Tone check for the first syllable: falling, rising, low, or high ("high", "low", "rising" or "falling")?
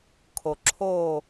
low